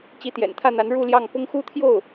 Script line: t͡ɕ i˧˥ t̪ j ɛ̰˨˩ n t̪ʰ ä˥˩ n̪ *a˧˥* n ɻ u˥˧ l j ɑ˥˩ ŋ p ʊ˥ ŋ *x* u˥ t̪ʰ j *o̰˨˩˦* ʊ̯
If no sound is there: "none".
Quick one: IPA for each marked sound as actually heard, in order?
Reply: a˧˥, x, o˥˩

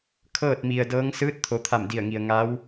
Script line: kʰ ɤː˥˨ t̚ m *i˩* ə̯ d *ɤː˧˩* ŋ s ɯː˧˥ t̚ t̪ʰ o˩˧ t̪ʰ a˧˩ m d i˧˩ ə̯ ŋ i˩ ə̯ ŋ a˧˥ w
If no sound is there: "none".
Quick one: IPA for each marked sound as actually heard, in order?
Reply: i˩, ɤː˧˥

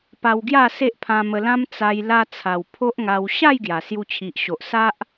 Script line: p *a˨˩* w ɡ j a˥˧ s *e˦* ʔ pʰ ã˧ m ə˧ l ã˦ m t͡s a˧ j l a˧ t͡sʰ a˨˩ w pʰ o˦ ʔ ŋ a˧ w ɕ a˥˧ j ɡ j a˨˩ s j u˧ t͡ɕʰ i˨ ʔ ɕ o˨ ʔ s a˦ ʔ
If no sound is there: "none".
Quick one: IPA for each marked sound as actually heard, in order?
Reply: a˧, e˦

